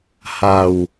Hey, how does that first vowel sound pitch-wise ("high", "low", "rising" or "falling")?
low